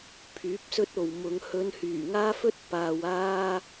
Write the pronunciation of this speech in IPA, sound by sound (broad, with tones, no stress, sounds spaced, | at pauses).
pʰ yː˨˥ p̚ s ɵ˧ t̚ o˨ w m ʊ˨˧ ŋ h ɵ˨˧ n h yː˨˩ ŋ aː˥ f ɵ˥ t̚ p aː˨ w aː˧